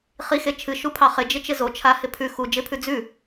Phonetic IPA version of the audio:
χ i x e t͡ʃʰ ɨ ʃ u pʰ ɑ χ ɪ d͡ʒ ɪ t͡ʃ ɪ z o t͡ʃʰ a h ɪ pʰ ʉ x u d͡ʒ ɪ pʰ ʉ d͡z ʉ

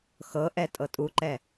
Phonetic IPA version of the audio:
x ɤ ʔ ɛ tʼ ɤ tʼ u ǃ ɛ

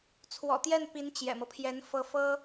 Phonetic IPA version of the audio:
t͡sʰ w ɔ̰˨˩ t̪ j ɛ˥˩ n p i˧˥ n t͡ɕ j ɛ̰˨˩ m ɤ˦ pʰ j ɛ˧˥ n f ɤ˧˥ f ɤ˥

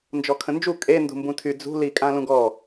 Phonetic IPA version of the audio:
n d͡ʒ ɔ kʰ ə̃ n d͡ʒ u kʼ e n d ṳ m b ũ tʰ y d͡z ṳ l i kʼ ã l ũ ɡ ɔ

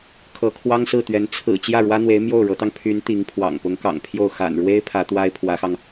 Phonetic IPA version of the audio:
kʰ ɤ˧˥ kʰ w ɑ˥ ŋ s ɹ̩˥˩ t̪ ɥ ɛ˧˥ n t͡sʰ ɹ̩˨˩ t͡ɕ j ä˥˩ ɻ w ä˥ n̪ w e˧˥ ɪ̯ m j o˥˩ ʊ̯ ɻ ɤ˧˥ t̪ ɑ˧ ŋ pʰ y˧˥ n t̪ i˧˥ ŋ pʰ w ɑ̰˨˩ ŋ p ʊ˧˥ ŋ k ɑ̰˨˩ ŋ pʰ j o˥˩ ʊ̯ x a̰˨˩ n ɻ w e˥ ɪ̯ pʰ ä˧˥ t̪ w a˥ ɪ̯ pʰ w ä˧˥ x ɑ˧ ŋ

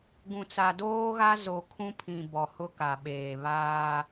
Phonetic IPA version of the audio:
ɡ ũ˨ t͡s a˨ d oː˦ ɣ a˦ z o˨ kʰ ũ˦ pʰ ĩ˨ b ɔ˨ h ʊ˦ k a˨ ɓ eː˨ β aː˦

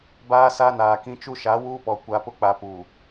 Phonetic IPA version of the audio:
b aː˦ s a˦ n aː˨ k ĩ˦ t͡ʃ u˦ ʃ a˨˦ w uː˦ p ɔ˨ kʷ a˨ p ʊ˦ k͡p a˨ p uː˨

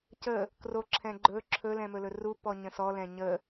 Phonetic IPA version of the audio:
c ə | k r o ǁʰ ɛ̃ ɡ͡ǃ ɵ ǁʰ ɵ l ɛ̃ m ɵ l ɵ r u p ɔ ɲ ə̃ s ɔ l ɛ̃ ɲ ə

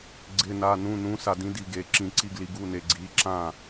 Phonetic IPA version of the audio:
ɡ͡ǀ ɪ˧˥˧ n a˧˥˧ n ũ˧˥˧ n ũ˧˥ s a˧ d ĩ˧˥ d i˧ ɡ e˩˧˩ ǁ ĩ˧ ǀ i˧˥˧ ɡ l i˧ ɡ u˧˥˧ n e˧ ɡ͡ǀ i˩˧˩ ǁ ã˥˩

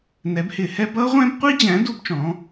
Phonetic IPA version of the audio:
n ɛ˨˥ b h ɪ˧˩˧ h ɛ˦˥ b ʌ˦˥ ʁʷ ɛ̃˦˥ b qʷ i˦˥ d͡ʑ æ̃˨˥ d u˦˥ b t͡ʃ ɔ̃˨˥

